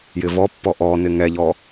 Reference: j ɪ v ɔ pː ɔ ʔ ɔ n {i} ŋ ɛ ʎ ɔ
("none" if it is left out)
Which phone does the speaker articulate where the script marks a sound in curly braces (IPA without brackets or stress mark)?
ɪ